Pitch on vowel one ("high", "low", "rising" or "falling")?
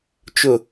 low